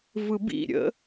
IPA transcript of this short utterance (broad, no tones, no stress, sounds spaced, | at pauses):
v ɯ b ḭ ɾʲ ə̰